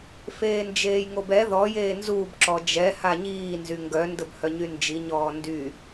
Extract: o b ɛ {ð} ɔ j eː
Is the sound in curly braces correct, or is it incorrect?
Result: correct